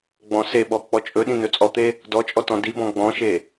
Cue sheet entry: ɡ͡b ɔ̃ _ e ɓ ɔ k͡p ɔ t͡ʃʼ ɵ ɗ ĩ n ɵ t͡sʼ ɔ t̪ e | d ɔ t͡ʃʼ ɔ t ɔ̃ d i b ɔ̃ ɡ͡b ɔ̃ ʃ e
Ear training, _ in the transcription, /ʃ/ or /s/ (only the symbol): s